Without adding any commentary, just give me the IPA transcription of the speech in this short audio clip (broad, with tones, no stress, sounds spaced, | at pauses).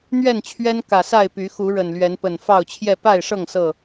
n̪ ɥ ɛ˥˨ n t͡ɕʰ ɥ ɛ˦ n k ä˨˩ s a˥˨ ɪ̯ p y˨˦ x u˨˦ ɻ ə˨˩ n l ɥ ɛ˨˦ n p ə˨˩ n f ɑ˥˨ ʊ̯ t͡ɕʰ j ɛ˥˨ p a˥˨ ɪ̯ ʂ ɤ˥˨ ŋ s ɤ˥˨